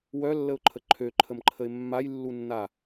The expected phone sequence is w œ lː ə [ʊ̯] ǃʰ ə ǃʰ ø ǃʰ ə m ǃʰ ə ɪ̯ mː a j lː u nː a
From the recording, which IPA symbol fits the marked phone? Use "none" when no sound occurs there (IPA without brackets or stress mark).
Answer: ʊ̯